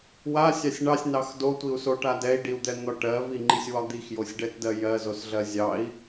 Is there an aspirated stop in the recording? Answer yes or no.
no